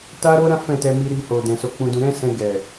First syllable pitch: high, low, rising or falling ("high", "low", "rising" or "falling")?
high